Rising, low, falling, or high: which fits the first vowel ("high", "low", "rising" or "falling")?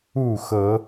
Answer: falling